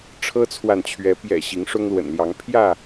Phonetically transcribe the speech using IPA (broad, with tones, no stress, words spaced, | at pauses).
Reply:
ʈ͡ʂʰɤ˦t͡sʰwa˨nt͡ɕʰɥɛ˨˦ pjɛ̰˨˩ ɕi˨˦ŋʂʊ˦ŋlwə̰˨˩nljɑ˨˦ŋ pʰjä˥˨